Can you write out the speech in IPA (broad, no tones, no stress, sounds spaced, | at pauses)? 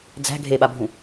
d͡z æ̤ ɡʱ e ɓ a bʱ ũ